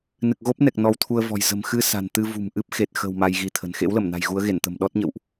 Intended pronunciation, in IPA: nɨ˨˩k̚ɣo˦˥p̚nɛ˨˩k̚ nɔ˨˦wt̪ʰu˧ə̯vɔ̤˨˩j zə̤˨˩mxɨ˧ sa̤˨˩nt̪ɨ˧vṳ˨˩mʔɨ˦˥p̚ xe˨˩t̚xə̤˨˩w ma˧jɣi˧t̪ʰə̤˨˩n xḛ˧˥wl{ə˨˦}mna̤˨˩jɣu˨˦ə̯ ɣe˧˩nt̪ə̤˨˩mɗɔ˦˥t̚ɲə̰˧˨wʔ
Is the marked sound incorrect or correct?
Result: incorrect